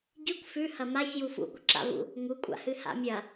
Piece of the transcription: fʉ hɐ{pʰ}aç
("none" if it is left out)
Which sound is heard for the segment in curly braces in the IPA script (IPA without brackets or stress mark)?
m